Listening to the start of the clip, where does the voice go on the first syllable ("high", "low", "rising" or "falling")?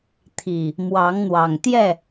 low